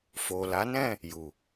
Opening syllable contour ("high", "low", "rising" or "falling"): low